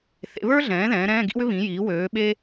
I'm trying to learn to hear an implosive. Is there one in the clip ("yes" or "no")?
yes